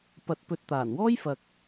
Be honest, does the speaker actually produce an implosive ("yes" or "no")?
no